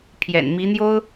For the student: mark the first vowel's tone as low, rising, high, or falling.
low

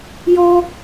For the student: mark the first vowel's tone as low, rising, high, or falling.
high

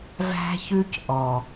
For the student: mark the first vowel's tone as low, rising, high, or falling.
high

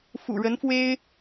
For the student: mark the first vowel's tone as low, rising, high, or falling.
low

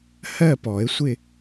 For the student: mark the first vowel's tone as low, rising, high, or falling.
falling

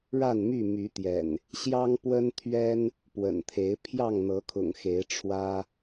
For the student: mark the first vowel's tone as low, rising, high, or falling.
falling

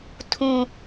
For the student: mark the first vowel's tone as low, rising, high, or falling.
high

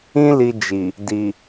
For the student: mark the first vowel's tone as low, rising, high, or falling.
high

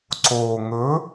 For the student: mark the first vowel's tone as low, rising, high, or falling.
low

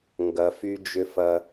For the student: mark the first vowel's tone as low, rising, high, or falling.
low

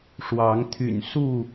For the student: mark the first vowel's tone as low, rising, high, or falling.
rising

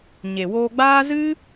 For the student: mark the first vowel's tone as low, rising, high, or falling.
low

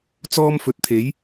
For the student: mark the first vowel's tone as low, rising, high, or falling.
high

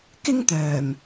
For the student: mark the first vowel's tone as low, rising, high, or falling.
high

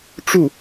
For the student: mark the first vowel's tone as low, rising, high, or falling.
falling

